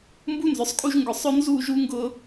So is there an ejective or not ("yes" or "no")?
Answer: yes